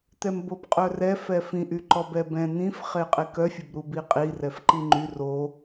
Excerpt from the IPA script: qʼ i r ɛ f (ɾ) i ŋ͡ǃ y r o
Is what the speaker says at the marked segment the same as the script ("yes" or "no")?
no